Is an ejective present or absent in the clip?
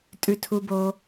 present